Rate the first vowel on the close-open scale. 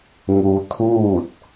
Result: close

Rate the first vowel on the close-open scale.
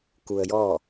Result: close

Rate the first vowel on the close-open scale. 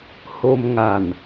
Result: mid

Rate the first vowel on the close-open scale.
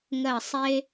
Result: mid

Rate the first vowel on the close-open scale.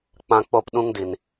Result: open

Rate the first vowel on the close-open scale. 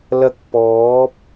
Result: open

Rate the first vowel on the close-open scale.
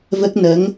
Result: mid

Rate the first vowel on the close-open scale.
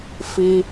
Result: close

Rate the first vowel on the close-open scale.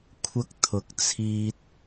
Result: open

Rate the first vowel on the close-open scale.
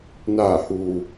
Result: open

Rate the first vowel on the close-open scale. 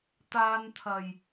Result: open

